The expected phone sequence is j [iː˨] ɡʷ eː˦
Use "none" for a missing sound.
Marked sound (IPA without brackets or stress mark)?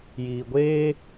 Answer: iː˨